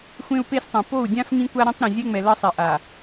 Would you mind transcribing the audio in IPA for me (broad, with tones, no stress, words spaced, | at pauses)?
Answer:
xʷẽ˦u̯pe˦stˤẽ˨ po˦˨u̯dʲã˦f ŋĩ˦kʷa˦ ɾẽ˦tˤɾẽ˨zʲɛ˦ŋ͡mɛ˨ lʌ˦ sˤɛ˨ʔa˨